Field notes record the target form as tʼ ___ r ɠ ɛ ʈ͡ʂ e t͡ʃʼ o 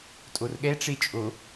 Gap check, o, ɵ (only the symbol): o